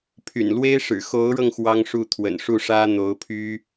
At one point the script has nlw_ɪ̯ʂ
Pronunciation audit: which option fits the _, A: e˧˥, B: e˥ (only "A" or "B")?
B